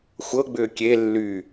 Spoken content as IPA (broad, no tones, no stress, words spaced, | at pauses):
xʷɤɡ͡bʏː kʲe lːy